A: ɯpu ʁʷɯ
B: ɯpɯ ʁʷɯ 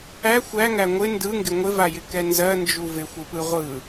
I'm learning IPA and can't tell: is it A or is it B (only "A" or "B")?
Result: B